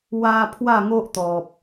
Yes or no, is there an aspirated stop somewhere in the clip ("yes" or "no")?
yes